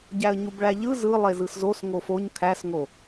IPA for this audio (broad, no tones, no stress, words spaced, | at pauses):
ɟæə̯ɲubɭæʎɯ zɯ lˠezɯszos ŋofoɲ kʰæsŋo